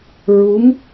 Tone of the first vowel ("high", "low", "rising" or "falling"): rising